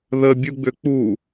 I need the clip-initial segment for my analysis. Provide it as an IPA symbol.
ð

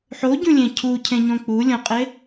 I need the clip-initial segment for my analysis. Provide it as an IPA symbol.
ħ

